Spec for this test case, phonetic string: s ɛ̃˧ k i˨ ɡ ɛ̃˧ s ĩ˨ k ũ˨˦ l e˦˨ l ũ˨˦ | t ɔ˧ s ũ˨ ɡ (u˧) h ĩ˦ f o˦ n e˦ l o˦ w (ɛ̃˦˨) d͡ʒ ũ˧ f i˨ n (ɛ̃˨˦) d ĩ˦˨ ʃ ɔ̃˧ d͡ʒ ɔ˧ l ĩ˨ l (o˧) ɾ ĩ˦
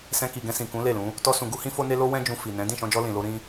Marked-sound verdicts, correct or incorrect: correct, incorrect: ɛ̃˦, correct, correct

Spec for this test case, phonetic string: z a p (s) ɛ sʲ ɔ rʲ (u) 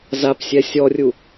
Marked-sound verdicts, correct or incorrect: incorrect: sʲ, correct

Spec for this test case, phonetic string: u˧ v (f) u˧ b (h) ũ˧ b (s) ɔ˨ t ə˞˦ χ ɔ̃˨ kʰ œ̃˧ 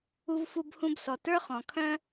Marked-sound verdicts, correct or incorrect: correct, correct, correct

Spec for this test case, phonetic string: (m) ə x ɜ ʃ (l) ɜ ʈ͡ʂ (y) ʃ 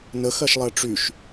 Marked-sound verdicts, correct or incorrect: incorrect: n, incorrect: lˠ, correct

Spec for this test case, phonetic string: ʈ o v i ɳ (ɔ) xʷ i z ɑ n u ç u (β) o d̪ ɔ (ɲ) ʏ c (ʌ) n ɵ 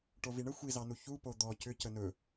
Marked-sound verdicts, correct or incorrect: incorrect: ə, incorrect: p, incorrect: c, incorrect: ə

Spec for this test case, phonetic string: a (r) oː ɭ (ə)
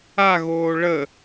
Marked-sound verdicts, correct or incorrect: incorrect: ɣ, correct

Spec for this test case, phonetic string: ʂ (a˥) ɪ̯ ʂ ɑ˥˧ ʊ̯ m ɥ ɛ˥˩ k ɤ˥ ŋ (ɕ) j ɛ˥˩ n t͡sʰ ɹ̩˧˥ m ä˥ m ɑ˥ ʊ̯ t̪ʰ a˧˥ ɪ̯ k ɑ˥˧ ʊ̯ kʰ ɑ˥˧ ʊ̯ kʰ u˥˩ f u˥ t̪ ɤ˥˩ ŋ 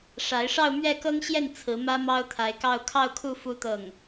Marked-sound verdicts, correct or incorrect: incorrect: a˧˥, correct

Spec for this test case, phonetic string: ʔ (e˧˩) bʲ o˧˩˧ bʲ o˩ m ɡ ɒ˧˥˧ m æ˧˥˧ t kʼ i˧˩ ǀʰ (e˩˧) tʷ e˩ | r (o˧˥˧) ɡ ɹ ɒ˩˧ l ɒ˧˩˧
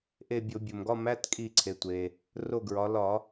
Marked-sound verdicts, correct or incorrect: correct, correct, incorrect: o˧˩

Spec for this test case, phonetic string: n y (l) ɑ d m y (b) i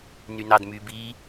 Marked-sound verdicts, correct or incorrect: incorrect: n, correct

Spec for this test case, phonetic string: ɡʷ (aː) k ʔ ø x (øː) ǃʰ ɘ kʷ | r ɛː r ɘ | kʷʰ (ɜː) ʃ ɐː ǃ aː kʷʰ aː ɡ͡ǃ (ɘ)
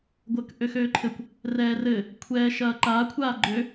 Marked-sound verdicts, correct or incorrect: incorrect: əː, correct, incorrect: ɛː, incorrect: ø

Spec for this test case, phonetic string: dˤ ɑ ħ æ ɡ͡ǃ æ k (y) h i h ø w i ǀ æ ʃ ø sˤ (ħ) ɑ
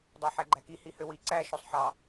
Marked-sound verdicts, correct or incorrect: incorrect: i, correct

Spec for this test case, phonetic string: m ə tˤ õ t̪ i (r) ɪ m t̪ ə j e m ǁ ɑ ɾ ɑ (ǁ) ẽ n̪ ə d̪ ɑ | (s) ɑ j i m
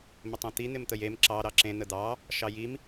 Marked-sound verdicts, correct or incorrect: incorrect: n̪, correct, incorrect: ʃ

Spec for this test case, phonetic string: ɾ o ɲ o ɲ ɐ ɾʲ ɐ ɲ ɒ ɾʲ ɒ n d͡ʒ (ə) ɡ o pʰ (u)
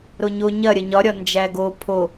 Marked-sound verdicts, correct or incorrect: incorrect: æ, incorrect: o

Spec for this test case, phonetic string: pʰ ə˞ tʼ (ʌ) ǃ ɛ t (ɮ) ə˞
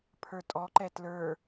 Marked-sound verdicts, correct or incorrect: incorrect: ɔ, incorrect: l

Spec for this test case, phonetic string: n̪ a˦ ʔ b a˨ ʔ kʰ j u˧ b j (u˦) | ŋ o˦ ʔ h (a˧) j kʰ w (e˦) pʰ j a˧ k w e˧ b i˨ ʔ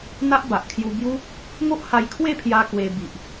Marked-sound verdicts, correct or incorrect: correct, correct, incorrect: e˥˧

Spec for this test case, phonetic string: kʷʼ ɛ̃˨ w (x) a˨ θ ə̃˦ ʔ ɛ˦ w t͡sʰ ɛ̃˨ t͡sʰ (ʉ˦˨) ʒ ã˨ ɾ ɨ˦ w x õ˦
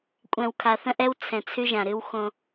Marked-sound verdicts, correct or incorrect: incorrect: kʰ, incorrect: ʉ˦

